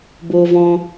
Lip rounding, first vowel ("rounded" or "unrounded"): rounded